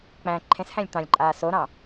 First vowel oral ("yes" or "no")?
no